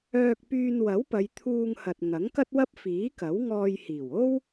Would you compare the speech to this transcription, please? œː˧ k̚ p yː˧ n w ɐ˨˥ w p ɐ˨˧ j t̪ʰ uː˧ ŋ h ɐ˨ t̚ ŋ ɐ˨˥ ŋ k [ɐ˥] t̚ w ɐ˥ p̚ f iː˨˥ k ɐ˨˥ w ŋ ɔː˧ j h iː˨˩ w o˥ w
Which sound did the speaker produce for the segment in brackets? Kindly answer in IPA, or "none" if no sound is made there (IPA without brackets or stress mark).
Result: ɐ˥